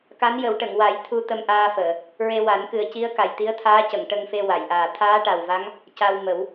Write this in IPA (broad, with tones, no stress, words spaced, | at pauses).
ka˧˥njə˨˩˦w ʈə˨˩˨ŋwa˨˩˦j t̪ʰu˧ t̪ə˧mʔaː˧fəː˨˩˨ | ɹe˧wa˨˩˦n kɨ˨˩ə̯ci˧˥ə̯ka˨˩j t̪i˧˥ə̯t̪ʰaː˧˥cə˨˩˨ŋ ʈə˧ŋfe˧ wa˨˩˨jʔaː˨˩ t̪ʰaː˧˥ʈa˨˩wva˧˥ŋ | ca˧w mə˨˩˦w